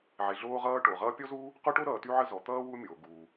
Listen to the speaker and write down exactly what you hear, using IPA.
ʕ e˩ ɮ oː˦ ʁ ʌː˦ ʈ o˩ ʁ ʌː˦ pʲ ɔ˥ z uː˥ | q o˥ ʈ o˥ ɾ ʌː˨ t y˦ ʕ ə˦ z ɔ˩ t̪ ʌː˥ w u˦ mʲ o˩ ɡ uː˩

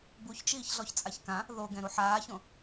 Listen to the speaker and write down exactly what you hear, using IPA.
b u ç t͡ʃ iː ç ɮ ɔ ç t͡sʼ a ç k ã | ð o ɡ ɛ̃ ɾ u ħ aː ç õ

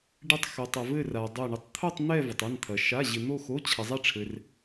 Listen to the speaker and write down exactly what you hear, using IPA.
ɖ ɪ˥˧ tˤ x o˧ tˤ ɐ˧ v ɘ˥˧ r a˧ dˤ o˥˧ ɳ ɪ˥˧ tˤ t̪ʰ o˥˧ tˤ n̪ ɛ˥˧ v ɐ˧ tˤ ɛ˧˥˧ n t̪ʰ ɐ˧ ʃ a˧˥˧ ʑ ɪ˧ n̪ o˥˧ x o˧˥˧ t͡ɕʰ ɐ˧ zˤ ɛ˥˧ ʈ͡ʂʰ ɘ˧ r

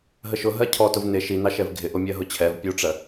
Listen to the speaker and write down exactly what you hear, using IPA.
ɦ ə ʃ ʊ ɦ ɜ cʰ ɔ t ʊ v n ɪ ʃ i n ɑ ʃ ɛ v ɡʱ ɪ ʔ ʊ mʲ ɜ ɦ ʊ t͡ɕʰ ɛ v pʲ u ʈ͡ʂ ɜ

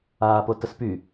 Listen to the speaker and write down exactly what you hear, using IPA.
aː p o t ə s p y

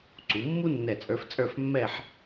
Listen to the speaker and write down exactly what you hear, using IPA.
ǀ u˩˧ mː u˥ nː ɛ˧˩ t͡sʼ ə˞˧ f t͡sʼ ə˞˥˧ f mː ɛ˥˧ ħ

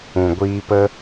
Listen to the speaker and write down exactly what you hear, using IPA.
ũ˨ ɡʷ iː˧ p ə˦

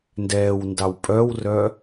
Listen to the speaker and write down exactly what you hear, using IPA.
n d ɛː w n d ɑ w pʼ œ w r œ

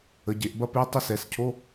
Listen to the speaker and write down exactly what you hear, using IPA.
ə˩˧ ɟ e˩˧ ʔ b ɐ˥˧ p e˧˥˧ tˤ ə˥˧ s ɛ˩˧ s cʰ o˧˥˧

